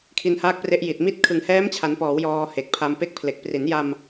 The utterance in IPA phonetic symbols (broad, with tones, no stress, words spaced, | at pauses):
kʰi˧nhaː˦˥k̚pre˦˥ʔ ji˨˩t̚mi˥˩t̚ kʰɯ˩˦ŋhɛː˦˥mt͡ɕʰa˩˦npɔː˩˦w jɔː˧he˨˩k̚pʰa˧m pe˦˥k̚pʰle˨˩k̚ pri˩˦nja˧m